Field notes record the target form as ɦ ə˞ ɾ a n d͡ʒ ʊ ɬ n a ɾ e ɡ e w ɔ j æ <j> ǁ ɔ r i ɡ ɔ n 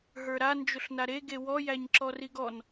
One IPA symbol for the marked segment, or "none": ɲ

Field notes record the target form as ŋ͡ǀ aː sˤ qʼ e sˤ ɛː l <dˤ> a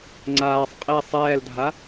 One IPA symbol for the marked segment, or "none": dʱ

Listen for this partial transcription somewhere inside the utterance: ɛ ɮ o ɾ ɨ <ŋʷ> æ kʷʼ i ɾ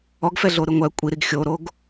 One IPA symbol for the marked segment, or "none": ŋʷ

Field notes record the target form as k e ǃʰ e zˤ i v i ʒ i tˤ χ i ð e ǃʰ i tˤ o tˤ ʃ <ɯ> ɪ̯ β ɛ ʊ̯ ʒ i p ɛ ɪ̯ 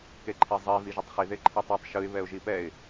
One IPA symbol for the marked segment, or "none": ɯ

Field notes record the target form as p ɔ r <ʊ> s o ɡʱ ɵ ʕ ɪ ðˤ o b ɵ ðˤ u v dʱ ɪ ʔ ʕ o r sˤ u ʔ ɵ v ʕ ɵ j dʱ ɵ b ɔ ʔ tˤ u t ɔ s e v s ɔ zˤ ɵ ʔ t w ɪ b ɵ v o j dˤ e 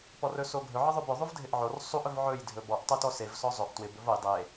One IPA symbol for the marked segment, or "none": ɵ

